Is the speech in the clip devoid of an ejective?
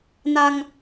yes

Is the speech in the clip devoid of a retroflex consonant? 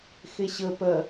yes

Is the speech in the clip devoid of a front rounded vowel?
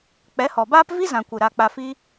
yes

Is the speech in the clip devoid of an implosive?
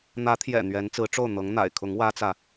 yes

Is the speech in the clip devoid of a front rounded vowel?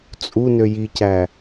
no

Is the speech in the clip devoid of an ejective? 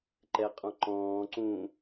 no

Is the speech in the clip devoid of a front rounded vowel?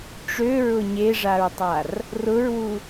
no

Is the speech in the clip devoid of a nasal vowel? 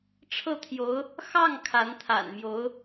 yes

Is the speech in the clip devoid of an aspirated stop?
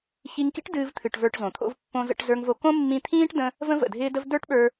no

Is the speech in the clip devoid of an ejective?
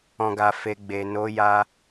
yes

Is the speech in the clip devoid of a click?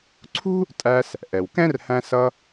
no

